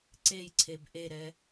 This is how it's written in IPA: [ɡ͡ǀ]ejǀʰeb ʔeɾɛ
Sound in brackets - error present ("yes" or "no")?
yes